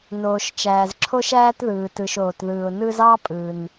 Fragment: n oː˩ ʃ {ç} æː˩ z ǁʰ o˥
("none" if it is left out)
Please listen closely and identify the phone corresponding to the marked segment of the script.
t͡ʃ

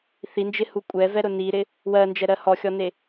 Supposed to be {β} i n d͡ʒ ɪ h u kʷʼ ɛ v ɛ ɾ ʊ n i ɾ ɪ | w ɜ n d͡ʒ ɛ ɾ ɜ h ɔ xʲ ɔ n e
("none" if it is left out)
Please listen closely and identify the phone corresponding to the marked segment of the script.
θ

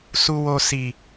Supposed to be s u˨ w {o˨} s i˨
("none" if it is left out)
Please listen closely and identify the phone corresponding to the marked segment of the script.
o˨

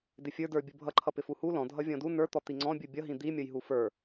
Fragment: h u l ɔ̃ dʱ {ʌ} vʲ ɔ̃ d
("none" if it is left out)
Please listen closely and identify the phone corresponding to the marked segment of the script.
ʌ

